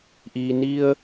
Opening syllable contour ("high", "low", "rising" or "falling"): low